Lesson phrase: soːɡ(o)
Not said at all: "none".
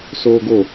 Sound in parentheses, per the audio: o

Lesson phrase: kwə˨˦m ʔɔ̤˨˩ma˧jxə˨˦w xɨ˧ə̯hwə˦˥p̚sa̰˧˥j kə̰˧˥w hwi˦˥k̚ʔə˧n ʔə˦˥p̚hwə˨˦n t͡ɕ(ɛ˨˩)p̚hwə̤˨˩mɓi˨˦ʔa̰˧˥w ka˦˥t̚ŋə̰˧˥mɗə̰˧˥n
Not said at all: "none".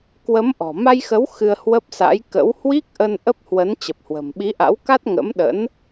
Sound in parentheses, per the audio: ə˨˩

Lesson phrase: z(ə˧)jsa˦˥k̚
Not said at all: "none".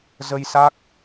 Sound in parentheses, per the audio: ə˧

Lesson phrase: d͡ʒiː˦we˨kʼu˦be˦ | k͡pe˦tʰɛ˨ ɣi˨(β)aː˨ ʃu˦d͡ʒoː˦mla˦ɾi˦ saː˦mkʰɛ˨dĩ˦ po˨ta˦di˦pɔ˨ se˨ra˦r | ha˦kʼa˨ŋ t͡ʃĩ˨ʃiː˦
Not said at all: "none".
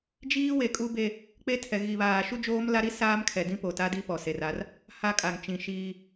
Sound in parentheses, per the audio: β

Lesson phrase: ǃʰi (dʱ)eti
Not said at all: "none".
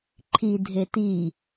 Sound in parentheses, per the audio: dʱ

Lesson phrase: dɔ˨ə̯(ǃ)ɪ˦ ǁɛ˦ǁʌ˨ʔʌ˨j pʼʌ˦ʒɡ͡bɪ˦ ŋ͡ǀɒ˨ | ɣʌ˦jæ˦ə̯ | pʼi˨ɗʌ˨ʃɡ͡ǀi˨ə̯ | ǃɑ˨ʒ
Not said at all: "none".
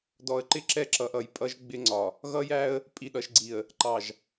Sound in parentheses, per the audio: ǃ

